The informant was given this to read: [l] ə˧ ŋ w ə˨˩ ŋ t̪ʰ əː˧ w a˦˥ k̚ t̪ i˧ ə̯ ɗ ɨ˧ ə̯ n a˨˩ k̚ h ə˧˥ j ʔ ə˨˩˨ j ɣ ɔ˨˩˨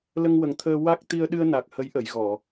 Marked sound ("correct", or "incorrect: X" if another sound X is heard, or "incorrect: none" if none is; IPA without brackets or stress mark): correct